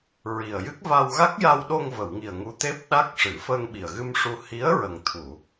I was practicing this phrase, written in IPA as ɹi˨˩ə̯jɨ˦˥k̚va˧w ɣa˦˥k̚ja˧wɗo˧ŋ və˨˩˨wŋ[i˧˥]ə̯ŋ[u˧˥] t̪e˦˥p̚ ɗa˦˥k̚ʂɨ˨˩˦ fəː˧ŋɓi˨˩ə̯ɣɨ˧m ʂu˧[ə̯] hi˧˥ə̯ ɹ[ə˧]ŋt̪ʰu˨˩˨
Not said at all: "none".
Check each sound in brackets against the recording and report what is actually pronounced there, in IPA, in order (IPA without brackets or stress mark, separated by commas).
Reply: i˨˩, u˧˥, none, ə˨˩